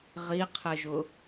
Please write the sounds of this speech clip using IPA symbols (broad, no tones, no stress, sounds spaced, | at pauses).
ʁ i qʰ ɪ ʒ ʊ